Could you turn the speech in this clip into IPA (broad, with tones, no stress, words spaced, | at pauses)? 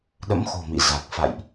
ɗə̰˧˥mxo̤˨˩ mḭ˧˨za˨˩k̚ fa̰˧˨jʔ